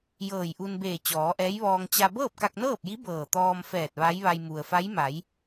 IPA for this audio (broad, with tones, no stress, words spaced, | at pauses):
jɤː˧˩jʔu˧n beː˧˩ t͡ɕɔː˩˧ʔɛː˧˥jʋɔː˧ŋ t͡ɕa˧ bɤː˥˨p̚ka˧k̚nɤː˥˨p̚ji˧˥ bɤː˧˩t̪ɔː˧mfɛː˧˩t̚ ʋa˧˥jʋa˧j mu˩ə̯fa˧˥j ma˩˧j